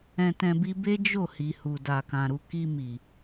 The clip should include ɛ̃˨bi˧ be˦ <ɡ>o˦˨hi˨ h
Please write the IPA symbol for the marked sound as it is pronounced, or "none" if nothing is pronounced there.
d͡ʒ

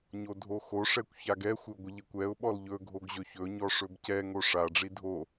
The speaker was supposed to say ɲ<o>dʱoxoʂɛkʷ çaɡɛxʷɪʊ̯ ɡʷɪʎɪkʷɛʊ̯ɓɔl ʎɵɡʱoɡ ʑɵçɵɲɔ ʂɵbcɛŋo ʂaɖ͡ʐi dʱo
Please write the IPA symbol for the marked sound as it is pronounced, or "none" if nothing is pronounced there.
o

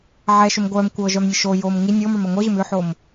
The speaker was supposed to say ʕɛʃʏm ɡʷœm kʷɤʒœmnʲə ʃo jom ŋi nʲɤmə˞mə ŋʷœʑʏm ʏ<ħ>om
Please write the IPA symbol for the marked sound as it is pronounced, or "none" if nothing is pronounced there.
ħ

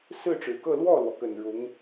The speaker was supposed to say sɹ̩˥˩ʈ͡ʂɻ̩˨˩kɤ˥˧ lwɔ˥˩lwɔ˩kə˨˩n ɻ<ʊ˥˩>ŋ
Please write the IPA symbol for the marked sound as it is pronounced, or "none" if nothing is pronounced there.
ʊ˧˥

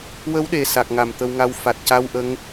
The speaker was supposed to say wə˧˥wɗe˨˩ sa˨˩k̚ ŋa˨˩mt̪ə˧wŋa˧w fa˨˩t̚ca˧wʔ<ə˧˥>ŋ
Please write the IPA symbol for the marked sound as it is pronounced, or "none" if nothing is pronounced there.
ə˧˥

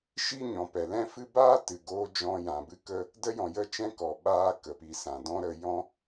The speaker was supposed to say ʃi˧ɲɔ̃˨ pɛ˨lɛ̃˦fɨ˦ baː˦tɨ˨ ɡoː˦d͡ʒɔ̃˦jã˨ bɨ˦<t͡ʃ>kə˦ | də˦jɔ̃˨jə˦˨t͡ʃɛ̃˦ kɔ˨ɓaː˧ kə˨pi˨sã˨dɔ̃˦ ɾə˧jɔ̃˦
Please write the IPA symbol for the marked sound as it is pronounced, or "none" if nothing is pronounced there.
none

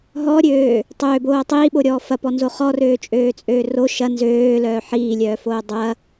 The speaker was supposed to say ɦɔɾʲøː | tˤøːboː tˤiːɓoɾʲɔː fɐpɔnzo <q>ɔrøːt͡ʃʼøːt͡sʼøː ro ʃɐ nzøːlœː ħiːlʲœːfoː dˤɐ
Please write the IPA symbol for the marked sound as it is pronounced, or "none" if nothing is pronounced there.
χ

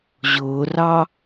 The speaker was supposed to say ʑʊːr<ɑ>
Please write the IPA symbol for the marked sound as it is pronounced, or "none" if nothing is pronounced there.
ɑ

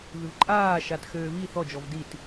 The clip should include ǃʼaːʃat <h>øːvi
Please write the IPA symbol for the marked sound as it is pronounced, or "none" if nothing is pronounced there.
x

